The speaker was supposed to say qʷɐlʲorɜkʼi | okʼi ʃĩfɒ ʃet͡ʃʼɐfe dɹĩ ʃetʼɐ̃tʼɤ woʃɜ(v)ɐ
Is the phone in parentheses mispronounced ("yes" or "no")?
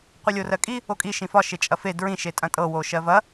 no